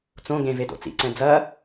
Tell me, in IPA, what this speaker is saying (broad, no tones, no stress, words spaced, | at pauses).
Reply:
t͡sõ ɡẽvedo̰ t͡sḭǀɛ̃ d͡zɐ